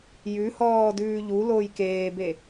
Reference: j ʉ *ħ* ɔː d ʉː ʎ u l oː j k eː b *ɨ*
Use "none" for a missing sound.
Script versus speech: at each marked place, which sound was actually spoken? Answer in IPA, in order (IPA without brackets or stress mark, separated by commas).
h, e